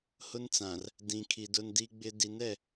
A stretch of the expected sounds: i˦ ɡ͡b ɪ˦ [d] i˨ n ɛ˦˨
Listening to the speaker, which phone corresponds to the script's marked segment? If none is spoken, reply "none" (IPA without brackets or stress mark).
d